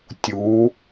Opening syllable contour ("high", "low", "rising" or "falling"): rising